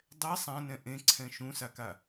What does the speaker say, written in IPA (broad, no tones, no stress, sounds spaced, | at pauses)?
dˤ ɛ sˤ ã n ɛ̃ ʔ ẽ ǀʰ ɛ̃ ʃ ũ s a k a